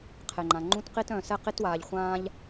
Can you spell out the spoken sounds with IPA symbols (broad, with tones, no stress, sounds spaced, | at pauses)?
qʰ e˩ ŋ͡ǃ ã˩ ŋ͡ǃ ũ˦ t q i˦ t œ̃˨ s ɛ˦ q i˦ t w aː˨ ʎ χʷ ãː˦ ʎ